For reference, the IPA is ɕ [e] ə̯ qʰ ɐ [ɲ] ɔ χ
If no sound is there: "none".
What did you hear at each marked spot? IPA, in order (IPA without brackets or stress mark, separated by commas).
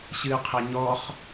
ɨ, ɲ